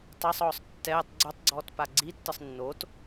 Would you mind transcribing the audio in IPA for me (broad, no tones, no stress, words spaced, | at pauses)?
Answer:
tˤasˤɔːsˤ tːɛːtˤ ɡ͡ǀotˤɡ͡ǀɔːtpa ɡ͡ǀitːɯsˤ nːot